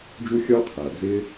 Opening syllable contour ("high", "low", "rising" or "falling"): high